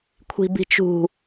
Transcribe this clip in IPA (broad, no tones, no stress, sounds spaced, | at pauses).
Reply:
kʷʰ i̤ b i̤ t͡ʃ ṳ